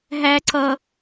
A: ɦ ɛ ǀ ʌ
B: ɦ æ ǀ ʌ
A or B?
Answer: B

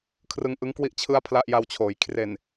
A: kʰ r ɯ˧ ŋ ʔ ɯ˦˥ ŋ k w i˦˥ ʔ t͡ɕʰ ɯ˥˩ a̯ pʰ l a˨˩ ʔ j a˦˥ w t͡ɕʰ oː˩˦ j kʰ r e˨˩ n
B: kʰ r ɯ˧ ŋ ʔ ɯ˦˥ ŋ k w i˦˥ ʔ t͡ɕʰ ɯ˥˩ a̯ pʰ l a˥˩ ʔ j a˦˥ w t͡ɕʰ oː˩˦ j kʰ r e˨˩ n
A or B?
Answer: B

